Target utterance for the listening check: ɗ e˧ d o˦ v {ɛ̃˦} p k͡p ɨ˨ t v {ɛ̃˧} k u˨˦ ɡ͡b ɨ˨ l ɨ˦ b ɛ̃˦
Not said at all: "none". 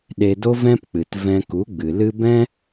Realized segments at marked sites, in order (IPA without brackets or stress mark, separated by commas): ɛ̃˦, ɛ̃˧